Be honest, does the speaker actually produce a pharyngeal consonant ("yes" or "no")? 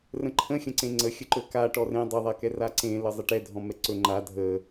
no